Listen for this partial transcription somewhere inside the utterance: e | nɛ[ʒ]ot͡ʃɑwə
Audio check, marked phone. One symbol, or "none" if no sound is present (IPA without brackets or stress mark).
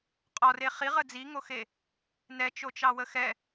t͡ʃ